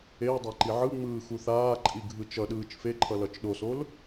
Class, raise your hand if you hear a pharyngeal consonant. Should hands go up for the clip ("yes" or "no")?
yes